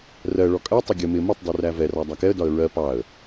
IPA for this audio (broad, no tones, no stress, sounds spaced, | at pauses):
r ɜ ɭ ɔ kʼ ɜ tˤ ə ɡʲ ə m ɪ m ʊ tˤ dˤ i r æ v ɛ r ɑ dˤ æ k ɛ ə̯ d ɒ ə̯ ɹ ɜ p ɑ ə̯